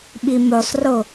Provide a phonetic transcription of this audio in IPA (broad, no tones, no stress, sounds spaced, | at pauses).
ɓ i m o sˤ r o